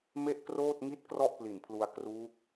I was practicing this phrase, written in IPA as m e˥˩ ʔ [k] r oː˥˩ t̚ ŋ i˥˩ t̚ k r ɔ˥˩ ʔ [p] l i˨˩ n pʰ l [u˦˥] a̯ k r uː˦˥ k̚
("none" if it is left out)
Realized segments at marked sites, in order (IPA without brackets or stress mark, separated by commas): k, p, u˧